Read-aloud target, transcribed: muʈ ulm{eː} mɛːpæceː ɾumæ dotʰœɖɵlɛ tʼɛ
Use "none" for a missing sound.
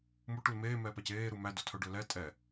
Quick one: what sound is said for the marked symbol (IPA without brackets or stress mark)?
eː